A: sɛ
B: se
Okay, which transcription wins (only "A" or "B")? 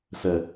A